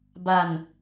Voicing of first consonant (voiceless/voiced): voiced